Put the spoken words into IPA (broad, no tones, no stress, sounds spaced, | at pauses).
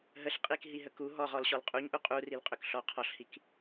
ɦ ə ɬ qʼ i k ɦ i ɦ ə k u ɦ ɔ ʁ ɔ l ɕ ɔ l qʼ u ɲ ʔ u qʼ u r i l qʼ ʏ k ɬ ɔ qʰ ɔ ɬ h i k